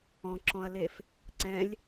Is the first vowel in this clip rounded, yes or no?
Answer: yes